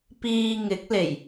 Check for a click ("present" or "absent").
absent